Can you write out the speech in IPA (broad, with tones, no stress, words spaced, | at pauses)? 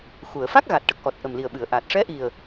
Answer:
xu˨˩˨ə̯ fa˦˥k̚ɣa˨˩t̚ʈə˨˩k̚ʔɔ˨˩t̚ ʔə˨˩mli˨˩ə̯ɓɨ˨˩˨ə̯ʔa˨˩t̚ ʂɛ˧˥ʔi˨˩ə̯